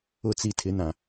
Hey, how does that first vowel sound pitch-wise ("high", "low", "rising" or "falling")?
falling